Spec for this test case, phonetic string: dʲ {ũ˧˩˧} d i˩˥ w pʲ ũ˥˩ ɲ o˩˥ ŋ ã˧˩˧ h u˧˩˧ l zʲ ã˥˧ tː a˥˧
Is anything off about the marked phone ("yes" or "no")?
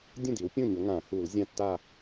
yes